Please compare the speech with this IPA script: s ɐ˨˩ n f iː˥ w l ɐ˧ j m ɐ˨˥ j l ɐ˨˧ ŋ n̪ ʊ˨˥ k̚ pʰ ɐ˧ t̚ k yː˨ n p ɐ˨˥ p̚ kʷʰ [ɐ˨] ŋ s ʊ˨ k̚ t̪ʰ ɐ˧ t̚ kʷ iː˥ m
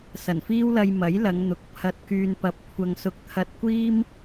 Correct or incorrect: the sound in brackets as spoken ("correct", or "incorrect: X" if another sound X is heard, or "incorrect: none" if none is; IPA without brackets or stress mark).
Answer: correct